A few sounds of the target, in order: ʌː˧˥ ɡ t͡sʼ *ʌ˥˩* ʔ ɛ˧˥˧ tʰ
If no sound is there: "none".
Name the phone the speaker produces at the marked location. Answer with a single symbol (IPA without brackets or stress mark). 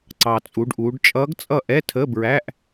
ʌ˥˩